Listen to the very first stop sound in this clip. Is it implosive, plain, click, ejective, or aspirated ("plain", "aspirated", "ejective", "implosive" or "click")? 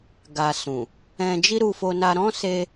plain